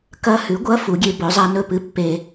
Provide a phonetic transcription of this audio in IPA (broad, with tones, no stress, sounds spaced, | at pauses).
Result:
k ɐ˧˥˧ h ʉ˩˥ ɡʷ ɐ˧˥˧ f u˩˧ ɡʲ e˧ b ɵ˩˥ zˤ a˧˥ n ɵ˧˥˧ p ɨ˧˥ pː e˧